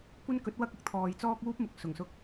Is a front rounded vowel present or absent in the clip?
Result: absent